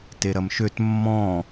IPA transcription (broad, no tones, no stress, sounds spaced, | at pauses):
t e ɾ ɐ m ʃ ø t mː ɔ̃